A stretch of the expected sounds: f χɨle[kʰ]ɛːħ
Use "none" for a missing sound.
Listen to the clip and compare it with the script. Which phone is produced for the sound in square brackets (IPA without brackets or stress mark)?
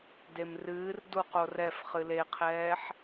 qʰ